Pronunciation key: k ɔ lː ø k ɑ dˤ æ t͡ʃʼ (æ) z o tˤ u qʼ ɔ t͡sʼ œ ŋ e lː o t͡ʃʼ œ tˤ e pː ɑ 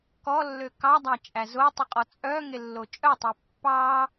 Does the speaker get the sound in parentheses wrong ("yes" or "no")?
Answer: no